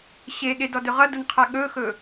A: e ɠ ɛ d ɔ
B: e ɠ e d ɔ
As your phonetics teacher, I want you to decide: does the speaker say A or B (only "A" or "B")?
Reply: B